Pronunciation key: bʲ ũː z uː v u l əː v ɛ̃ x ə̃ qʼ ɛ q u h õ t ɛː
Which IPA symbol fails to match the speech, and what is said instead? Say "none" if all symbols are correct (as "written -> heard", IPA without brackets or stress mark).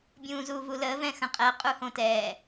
q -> qʼ